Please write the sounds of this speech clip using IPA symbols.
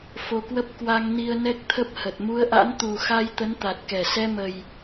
f o˧ k w ə˦˥ p̚ k w a˧ ŋ n i˧ ə̯ n ɛ˦˥ k̚ t̪ʰ ə˦˥ p̚ h ə˨˩ t̚ m u˨˦ ə̯ ʔ a̰˧˥ n t̪ u˨˩ x a˧ j t̪ ə˨˦ n t̪ a˨˩ t̚ k ɛ˧˩ s ɛ˧ m ə˨˩ j

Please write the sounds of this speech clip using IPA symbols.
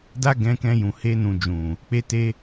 d a˦ ɡ ɛ̃˧ k ɛ̃˧ j ũ˨ h e˧ n ũ˨ d͡ʒ ũ˨ | k͡p e˧ t e˧

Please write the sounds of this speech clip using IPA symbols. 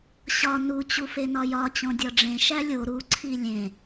ɕ ɒ n u t͡ɕ u f e n ɒ j ɒ t͡ɕ õ dʲ ɒ ɖ͡ʐ ẽ ʃ æ lʲ o ɾ u ǀʰ i lʲ ẽ

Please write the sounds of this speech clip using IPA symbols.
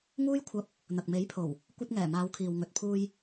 ŋ uː˥ j kʷʰ ɐ˧ p̚ | n̪ ɐ˨ k̚ m e˨˥ j pʰ o˨˩ w | kʷ ɐ˧ t̚ ŋ ɛː˨˩ m aː˨˧ w kʰ iː˨ w ŋ ɵ˨ t̚ pʰ uː˧ j

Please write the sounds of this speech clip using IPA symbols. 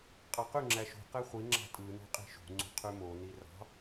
qʼ ɑ q y ŋ͡ǁ æ ʃ ṳ q e χʷ i ŋ͡ǁ ɑ̤ tʼ ɯ n o̤ qʼ i̤ ʃ ṳ ŋ͡ǀ ṳ qʰ y m o n i r ɑ̤

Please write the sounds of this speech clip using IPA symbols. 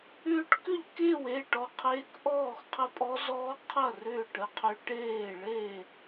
ʏː˦˥ ʈ k ʏ˥˨ ʎ k eː˥˨ w eː˥˨ ʈ ɔ˥˨ qʰ eː˦˥ k ʔ ɔː˥˨ x qʰ ə˦˥ pʼ ɔ˦˥ z ɔː˦˥ qʰ ɐ˥˨ r ʏː˥˨ ʈ ə˥˨ qʰ ʏ˦˥ ʈ eː˥˨ ɭ e˥˨

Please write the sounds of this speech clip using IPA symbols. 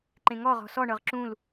ǃ ẽ ŋ ɔ ʁ ɔ̤ s ɔ ɳ ɤ ʁ ǁ ũ l

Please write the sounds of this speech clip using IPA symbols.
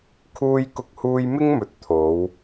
kʰ uː˧ j k ʊ˧ k̚ h uː˧ j m ɪ˥ ŋ m ɵ˨ t̚ t̪ʰ o˨˧ w

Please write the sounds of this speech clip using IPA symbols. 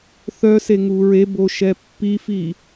θ œ s e ŋ u ɹ e b o ʃ ɛ pː i f i

